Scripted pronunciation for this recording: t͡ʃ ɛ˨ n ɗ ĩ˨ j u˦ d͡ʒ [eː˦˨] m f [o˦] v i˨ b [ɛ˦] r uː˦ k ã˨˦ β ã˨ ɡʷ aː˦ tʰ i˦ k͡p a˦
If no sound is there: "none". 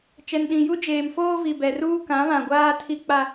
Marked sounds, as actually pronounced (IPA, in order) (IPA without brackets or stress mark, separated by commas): eː˨, oː˦, ɛ˨